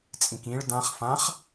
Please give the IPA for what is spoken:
t͡sʼ ĩ k ĩ ɭ d ã χ f ã χ

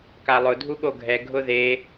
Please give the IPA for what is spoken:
k a lˠ ʊ dʱ u ɠ o ɡʱ ɛ ɡʱ ʊ ð e

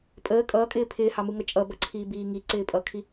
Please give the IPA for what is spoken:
pʼ əː kʼ ʌː kʼ ɪː pʰ ɪː h ɑ m u ŋ ʌ t͡ʃʼ ʌ b ʌ ǀʰ iː b iː ŋ i ǀ ɪː pʼ ʌ kʰ i

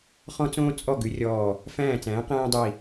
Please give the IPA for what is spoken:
χ ɔ̃˥ t͡s õː˥ t͡sʼ ɔ˥˨ ɡ ʉ˨˥ rʲ ɔː˧˩ | f æ̃ː˥˨ t͡s æ̃ː˨˥ q æ̃ː˥ dˤ i˧˩

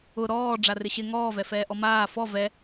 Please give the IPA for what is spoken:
ʊ ɾ ɔː ɖ͡ʐ a r ɪ ɕ ɪ ŋ ɔː v ɛ f ɛː ʔ ɔ m aː f ɔ v ɛ

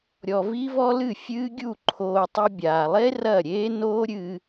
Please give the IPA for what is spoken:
ɾʲ ɔ˧ v i˦ v ɔ˦ l ɨ˦˨ fʲ ɨː˦ ɡʲ u˦˨ ǃʰ oː˧ tˤ ɨ˧ bʲ aː˨ lˠ e˦ r ɐ˦˨ ɾʲ eː˦ n oː˦ ɾʲ ɨː˧

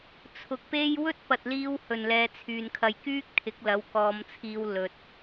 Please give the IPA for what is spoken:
t͡sʰ ʊ˨ k̚ p e˥ j w ɵ˥ t̚ p ɐ˨ t̚ l iː˧ w h ɵ˨˩ n l ɛː˨˧ t͡sʰ yː˨ n kʰ ɐ˧ j k yː˥ k̚ t̪ʰ ɪ˨˥ k̚ l ɐ˨˥ w k ɔː˨˧ m t͡sʰ iː˧ w l ɵ˨ t̚

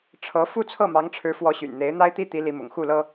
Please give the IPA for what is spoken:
ʈ͡ʂʰ ɤ˧˥ f u˥˧ t͡sʰ ɤ˥˩ m ɑ˧˥ ŋ ʈ͡ʂʰ ɻ̩˧˥ f w ɔ˧˥ ɕ y̰˨˩ n n̪ e˧˥ ɪ̯ n̪ a˥ ɪ̯ t̪ i˥ t̪ i˧˥ l i˧˥ m ʊ̰˨˩ ŋ x u˥˩ l ɤ˥

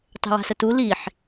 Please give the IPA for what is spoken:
tˤ e̤ w a̤ s ə t u l i ħ

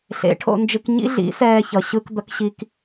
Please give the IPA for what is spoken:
ɬ ḛ˩˥ ʈʰ o̰˧ n d͡ʒ ɯ˧ k ɲ ḭ˥ ɮ ḭ˩˥ s ɛː˧ ç ʌ˩ ɕ ɯ˧ k d̪ ʌ˩˥ k ɕ i˧ k

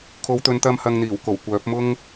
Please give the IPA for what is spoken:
kʰ o˨˧ w t̪ ɵ˨ n t̪ ɐ˧ m h ɐ˧ ŋ n̪ iː˨˩ w k o˨˩ w kʷ œː˨˥ p̚ m ʊ˥ ŋ

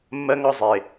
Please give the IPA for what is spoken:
mː ɜ˦ ŋ ɒ˦ zˤ e˨

